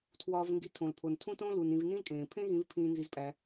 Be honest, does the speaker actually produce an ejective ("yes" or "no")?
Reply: yes